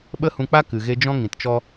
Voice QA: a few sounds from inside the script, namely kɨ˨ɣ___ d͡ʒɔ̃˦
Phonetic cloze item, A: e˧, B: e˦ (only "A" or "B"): A